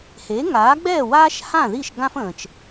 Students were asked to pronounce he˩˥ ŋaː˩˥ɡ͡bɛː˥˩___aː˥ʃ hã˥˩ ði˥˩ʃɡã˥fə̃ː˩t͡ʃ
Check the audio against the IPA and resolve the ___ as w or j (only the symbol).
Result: w